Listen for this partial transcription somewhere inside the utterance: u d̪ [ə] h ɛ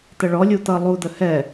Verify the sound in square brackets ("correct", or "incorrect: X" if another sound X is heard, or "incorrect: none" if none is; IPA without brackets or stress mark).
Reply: correct